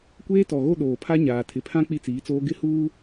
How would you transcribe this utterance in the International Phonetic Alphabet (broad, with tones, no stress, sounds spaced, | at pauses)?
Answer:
kʷ eː˦ t ɔ˨ ɣ o˦ ɗ oː˨ pʰ a˦ ɲ aː˨ tʰ ɪ˨ pʰ ã˦ k͡p i˦ t͡s iː˨˦ t͡s oː˦ ɡ ɪ˦ h uː˦